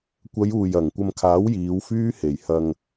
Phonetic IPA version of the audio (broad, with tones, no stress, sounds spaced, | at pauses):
kʷ ɐ˨˧ j uː˨˩ j ɐ˨˩ ŋ kʷ ɐ˧ m kʰ aː˨˥ w j iː˨˧ w f yː˥ h e˨˩ j h ɐ˧ ŋ